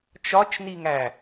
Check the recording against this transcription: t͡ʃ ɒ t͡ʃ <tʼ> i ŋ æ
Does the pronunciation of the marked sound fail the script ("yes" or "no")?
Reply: yes